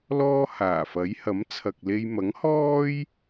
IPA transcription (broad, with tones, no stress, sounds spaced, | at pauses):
l ɔː˥ h aː˨˩ f ɐ˨˥ j h ɐ˨˥ m t͡sʰ ɐ˨ k̚ l e˧ j m ɐ˨˥ ŋ h ɔː˥ j